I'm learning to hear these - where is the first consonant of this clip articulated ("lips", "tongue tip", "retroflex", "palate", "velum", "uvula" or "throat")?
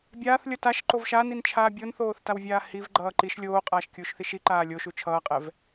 lips